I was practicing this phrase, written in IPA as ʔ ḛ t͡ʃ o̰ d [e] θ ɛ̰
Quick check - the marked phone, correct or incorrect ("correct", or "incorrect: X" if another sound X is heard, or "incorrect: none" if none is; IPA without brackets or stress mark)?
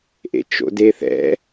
correct